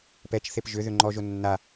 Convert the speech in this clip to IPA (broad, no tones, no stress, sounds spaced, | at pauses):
p ɛ t͡ʃ θ e p ʒ ʏ ð ʏ ŋ͡ǃ ɔ ʒ o nː a